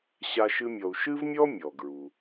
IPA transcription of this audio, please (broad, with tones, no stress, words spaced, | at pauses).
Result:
ɕa˥ʃɨ˥mʲɔ˧u̯ ʃɨ˥vmʲɔ˥ mʲɔ˩ɡɹu˩